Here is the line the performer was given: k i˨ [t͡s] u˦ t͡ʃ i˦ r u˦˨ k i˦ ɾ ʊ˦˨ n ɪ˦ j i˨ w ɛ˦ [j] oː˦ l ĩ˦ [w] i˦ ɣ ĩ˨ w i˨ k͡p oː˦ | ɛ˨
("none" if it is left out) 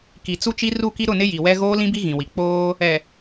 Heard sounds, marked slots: t͡s, ɣ, b

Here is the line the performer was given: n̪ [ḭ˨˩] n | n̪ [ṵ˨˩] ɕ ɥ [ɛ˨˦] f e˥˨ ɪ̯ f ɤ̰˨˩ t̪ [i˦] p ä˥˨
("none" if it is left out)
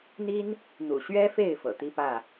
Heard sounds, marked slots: i˦, ṵ˨˩, ɛ˦, i˦

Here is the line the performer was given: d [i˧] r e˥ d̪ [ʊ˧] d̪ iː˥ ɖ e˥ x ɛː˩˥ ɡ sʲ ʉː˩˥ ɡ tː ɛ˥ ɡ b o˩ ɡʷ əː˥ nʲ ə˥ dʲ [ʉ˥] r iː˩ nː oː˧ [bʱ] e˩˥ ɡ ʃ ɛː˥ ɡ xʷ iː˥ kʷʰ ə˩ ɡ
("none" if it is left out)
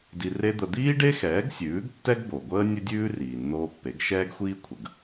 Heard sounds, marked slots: i˧, ə˧, ʉː˥, pː

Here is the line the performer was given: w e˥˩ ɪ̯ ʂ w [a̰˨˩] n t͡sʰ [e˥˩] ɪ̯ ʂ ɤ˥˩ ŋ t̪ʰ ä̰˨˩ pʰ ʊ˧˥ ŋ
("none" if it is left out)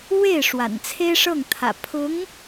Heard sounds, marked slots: a̰˨˩, e˥

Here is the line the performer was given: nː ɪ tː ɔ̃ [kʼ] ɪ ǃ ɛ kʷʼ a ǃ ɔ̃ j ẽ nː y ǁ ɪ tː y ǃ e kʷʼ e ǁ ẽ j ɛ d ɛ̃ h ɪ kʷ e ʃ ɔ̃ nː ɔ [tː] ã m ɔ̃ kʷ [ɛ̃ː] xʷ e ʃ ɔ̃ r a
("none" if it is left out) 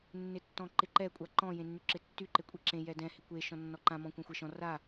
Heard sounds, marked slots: ǃ, ǃ, ɛ̃

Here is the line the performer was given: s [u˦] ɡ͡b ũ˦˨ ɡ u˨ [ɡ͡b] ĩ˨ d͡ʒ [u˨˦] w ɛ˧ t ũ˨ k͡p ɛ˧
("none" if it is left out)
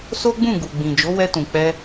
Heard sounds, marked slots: o˦, ɡ͡b, o˨˦

